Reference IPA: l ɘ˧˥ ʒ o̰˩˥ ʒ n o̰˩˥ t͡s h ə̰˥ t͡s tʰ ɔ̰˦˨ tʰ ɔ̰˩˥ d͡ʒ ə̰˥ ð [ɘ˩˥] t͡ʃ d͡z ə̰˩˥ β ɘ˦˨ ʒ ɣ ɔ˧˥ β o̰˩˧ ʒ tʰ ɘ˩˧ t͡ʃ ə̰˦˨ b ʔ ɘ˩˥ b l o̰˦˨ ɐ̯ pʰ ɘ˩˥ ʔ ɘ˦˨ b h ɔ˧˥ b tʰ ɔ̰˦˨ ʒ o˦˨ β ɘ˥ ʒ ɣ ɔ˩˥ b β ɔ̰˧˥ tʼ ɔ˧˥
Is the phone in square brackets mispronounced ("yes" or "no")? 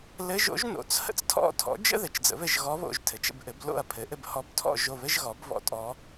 no